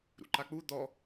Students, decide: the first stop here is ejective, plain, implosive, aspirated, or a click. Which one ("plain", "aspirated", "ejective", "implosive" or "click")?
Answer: click